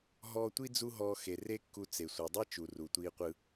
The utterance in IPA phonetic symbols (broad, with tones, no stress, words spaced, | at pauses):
ɦɔː˧tʷi˥ d͡zu˥ɦɔː˧xe˩re˥ kːu˧t͡se˩ sʷɤ˩dˤe˥t͡ʃu˩ ru˩tʷiː˧qʷɯ˧